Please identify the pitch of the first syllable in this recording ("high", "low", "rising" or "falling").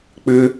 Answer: low